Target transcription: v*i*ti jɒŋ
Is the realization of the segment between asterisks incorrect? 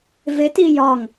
yes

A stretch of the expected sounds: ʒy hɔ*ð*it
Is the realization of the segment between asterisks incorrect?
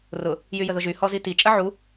yes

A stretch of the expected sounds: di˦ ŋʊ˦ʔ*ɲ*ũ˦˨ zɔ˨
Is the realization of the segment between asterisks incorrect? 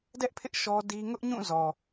no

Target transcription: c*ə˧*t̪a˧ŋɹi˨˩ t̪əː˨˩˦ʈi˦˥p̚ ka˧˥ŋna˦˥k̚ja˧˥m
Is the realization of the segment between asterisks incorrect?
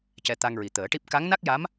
yes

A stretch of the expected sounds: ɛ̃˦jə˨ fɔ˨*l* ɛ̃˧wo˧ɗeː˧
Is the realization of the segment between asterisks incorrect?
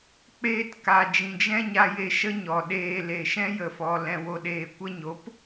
no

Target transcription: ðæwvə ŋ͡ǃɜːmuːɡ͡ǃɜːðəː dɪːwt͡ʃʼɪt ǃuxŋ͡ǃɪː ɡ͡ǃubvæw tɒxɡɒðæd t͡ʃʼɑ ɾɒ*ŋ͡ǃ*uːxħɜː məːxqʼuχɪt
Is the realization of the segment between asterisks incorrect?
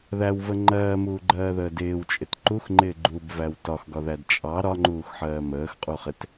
no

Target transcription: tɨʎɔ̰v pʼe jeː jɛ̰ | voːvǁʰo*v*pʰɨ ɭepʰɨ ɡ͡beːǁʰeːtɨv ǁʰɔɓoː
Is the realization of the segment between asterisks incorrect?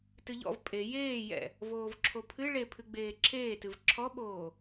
yes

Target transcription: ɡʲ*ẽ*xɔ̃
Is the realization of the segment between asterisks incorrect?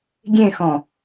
no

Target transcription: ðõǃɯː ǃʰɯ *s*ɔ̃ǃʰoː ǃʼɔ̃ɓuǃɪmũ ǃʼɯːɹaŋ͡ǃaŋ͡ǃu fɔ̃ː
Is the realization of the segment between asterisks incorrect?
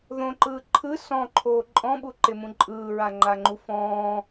no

